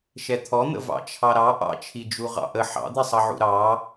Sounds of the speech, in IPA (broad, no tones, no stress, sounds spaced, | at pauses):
ʃ ɛ t̪ʰ ɔ n̪ ə̰ v ɑ̰ t͡ʃʰ ɑ ɾ ɑ ʔ ɑ̰ t͡ʃʰ i d͡ʒ u ʁ ɑ̰ ʔ ə ħ ɑ̰ d̪ i sˤ ʌ ʕ ṵ ɾ ɑ